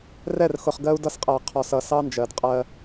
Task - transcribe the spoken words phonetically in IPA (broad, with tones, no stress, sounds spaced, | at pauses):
r ɛ˦˨ r x ʊ˨ χ ɡ ɜ˦ u̯ d ʌ˦ s qʼ æ˨ qʰ ɔ˨ s ʌ˨ s ɑ˦ n d͡ʒ ɜ˨ d qʼ ɜ˦